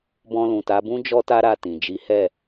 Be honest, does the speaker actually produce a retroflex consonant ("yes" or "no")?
no